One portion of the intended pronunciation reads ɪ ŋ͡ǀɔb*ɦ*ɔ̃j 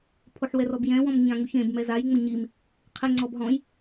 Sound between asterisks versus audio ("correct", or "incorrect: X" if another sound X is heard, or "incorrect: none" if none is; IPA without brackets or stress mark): correct